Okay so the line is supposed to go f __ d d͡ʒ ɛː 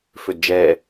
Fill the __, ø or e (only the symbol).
ø